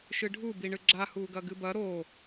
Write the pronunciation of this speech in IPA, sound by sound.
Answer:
ʃɨɖʱu biɳɨɡ͡ǁa huɡɐɡɨbɐ ɾo

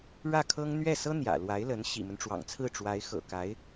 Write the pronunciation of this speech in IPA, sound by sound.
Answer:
ɻä˥˩kʰɤ˥ŋ n̪ɥɛ˥˩sɤ˥ n̪jä̰˨˩lwa˧˥ɪ̯lə˧˥n ɕḭ˨˩mə˦nʈ͡ʂwɑ̰˨˩ŋt͡sʰɹ̩˥˩ ʈ͡ʂwa˧˥ɪ̯xɤ̰˨˩ka˧˥ɪ̯

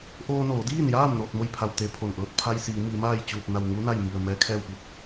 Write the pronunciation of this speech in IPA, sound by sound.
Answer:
ʔoː˧noː˩˧diː˥˨njaː˥˨m no˥˨t̚mo˥˨jpʰa˧˩w t̪e˧˥ pʰo˧˩nʔɤː˧t̚ pʰa˧jsiː˩˧ mi˩˧maː˥˨jt͡ɕuː˧˩t̚ na˧˩wŋu˧˥ na˥˨jmi˧˩ə̯ mɛː˧˥kʰɛː˥˨wpi˥˨t̚

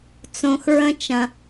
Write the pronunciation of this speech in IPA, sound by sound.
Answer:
t͡sõ˧xɹə̃˦t͡ʃɐ̃˧

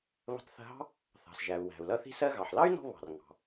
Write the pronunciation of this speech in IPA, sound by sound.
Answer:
βə̤˧tˤθə̤˧ɦɑ̤˥ | θɑ̤˩sʒæ˩u̯ wæ̤˩u̯lʌ˧ θi̤˧ sɜ˧ɣɑ˩ħlɑ˥y̯nɔ̤˧ βɑ̤˩rŋɑ̤˩

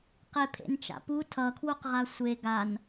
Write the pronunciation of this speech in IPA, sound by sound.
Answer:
qepʰḛnt͡ʃa̰pu tʰʌkʰwuqʁa sʷe ɡan

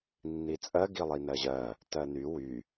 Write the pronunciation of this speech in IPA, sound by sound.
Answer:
nːit͡sʼɜɡi lˠinɜʑɜ | tɜny wy

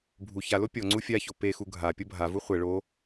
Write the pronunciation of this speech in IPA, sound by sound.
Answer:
bʱu çalo pʲɔŋ͡ǀu fʲaço pexu ɡʱa pʲɤbʱavu χʷɛ ɭo

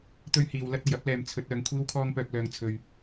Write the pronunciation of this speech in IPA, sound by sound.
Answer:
t̪ɵ˥ɥhiː˨wlɐ˥t̚ ɐ˨jɐ˥p̚lɛː˨m t͡sʰɵ˨˥t̚ œː˨ŋkʷʰiː˥wkʰɔː˥ŋpœː˧k̚ lœː˧ŋt͡sʰɵ˧ɥ

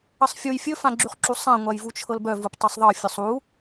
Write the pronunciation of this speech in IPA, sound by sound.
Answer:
əsˤfʲuj fʲɵfãɡ͡ǁyχǁu sˤãŋʷajvu t͡ʃʰɤlbœ vuptˤesˤðˤɤ fʲɵsˤu

